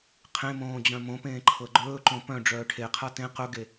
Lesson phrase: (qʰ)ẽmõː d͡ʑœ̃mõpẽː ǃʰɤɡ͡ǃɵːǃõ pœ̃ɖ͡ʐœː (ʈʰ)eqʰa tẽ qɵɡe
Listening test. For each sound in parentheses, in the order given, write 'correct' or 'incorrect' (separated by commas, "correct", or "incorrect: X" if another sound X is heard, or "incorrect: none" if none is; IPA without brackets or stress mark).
correct, correct